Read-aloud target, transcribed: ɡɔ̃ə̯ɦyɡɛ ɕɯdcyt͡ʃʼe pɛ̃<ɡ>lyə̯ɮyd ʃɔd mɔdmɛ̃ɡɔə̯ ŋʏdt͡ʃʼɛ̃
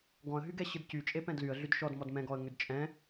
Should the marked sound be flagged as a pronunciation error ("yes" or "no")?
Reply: yes